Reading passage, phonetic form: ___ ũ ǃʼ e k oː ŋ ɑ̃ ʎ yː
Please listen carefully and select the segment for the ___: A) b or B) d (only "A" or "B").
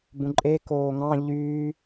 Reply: A